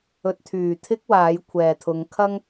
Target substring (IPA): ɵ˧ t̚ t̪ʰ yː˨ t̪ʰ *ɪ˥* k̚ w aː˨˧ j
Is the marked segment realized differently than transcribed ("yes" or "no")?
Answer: no